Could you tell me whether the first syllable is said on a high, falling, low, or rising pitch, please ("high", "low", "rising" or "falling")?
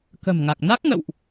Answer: low